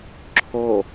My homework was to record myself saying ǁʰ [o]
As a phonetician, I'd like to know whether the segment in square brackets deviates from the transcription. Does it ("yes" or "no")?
no